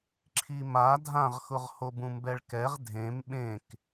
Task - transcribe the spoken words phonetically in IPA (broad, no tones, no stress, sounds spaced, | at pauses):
ǁʰ i m a dʱ ã ʁ x ʊ ʁ h o b ũ m b ɛ ɭ k ɛ ʁ dʱ ẽ m ɓ ẽ k